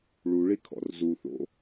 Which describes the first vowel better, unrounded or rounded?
rounded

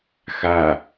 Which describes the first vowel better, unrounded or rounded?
unrounded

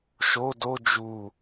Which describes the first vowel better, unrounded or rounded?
rounded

